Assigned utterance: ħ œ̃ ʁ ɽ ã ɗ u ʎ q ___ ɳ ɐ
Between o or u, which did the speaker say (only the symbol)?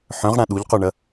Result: o